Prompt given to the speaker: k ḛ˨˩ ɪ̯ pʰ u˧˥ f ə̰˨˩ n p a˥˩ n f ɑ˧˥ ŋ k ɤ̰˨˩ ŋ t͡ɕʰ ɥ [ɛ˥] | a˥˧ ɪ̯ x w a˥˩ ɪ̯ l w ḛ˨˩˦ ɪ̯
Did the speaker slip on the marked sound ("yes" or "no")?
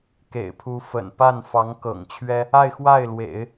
no